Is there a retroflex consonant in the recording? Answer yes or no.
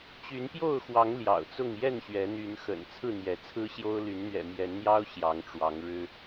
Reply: yes